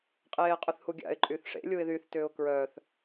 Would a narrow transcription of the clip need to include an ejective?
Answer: yes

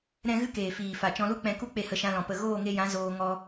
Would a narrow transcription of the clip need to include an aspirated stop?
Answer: no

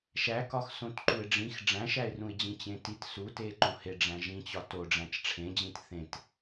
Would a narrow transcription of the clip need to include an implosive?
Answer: no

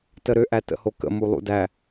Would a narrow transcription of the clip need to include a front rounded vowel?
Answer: yes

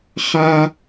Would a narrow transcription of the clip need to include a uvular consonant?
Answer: yes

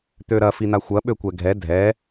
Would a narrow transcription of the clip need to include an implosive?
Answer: yes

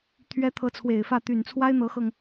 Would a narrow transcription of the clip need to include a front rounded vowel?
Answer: yes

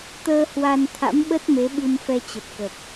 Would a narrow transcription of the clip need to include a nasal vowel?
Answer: no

